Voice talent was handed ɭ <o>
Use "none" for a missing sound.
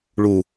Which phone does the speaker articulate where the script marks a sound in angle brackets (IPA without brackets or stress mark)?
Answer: u